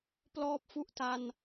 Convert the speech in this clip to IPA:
p l ɔː˦˥ p̚ f u˦˥ ʔ t a˧ n

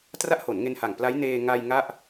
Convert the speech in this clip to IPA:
t r a˦˥ ʔ h o˩˦ n ŋ e˧ n h a˨˩ ŋ p l a˦˥ j n eː˧ ŋ a˧ j ŋ a˥˩ ʔ

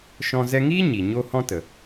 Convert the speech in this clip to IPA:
ʃ ɔ̃˧ z ɛ˧ ŋ iː˦ ɲ i˨ ɲ o˦ h ɔ̃˦ t ə˨

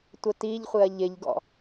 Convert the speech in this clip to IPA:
tʷ ə t i ʎ χʷ ɪ ɐ̯ ʎ ɪ ʎ ɡ ɔ̰

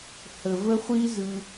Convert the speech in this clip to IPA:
h ə˨ v ə˦ χʷ i˦ z ɯ˨

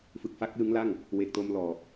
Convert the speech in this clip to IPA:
f ɯ˨˩ k̚ f a˦˥ k̚ l ɯ˦˥ ŋ l a˥˩ ŋ | w e˨˩ k̚ t o˧ m l ɔː˨˩ k̚

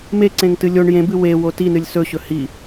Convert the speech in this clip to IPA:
m e ǀ ẽ ŋ t ɨ lʲ o ɳ j ẽ b ɨ w e w o t i n ɨ lʲ s ɵ ɕ ɵ h i

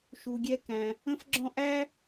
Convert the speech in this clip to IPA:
ʃ u˧ ɡʲ ɛ˦ k æ̃˧ | ə̃˦ f ɡ͡ǁ ɔ̃˦ ʔ æ˦

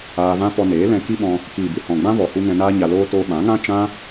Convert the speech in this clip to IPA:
aː˧ v ã˦ p ɔ˧ n eː˨˦ l ɛ̃˧ k i˦ ɓ ɔ̃˧ | k iː˨ b ɨ˨ h ɔ̃˨ ɡ͡b ã˦ v ɔ˨ h u˧ ŋ ɛ̃˧ n aː˧ ɲ a˧ l oː˦ t oː˦ ɓ ã˨˦ ŋ ã˦ t͡ʃ ã˦

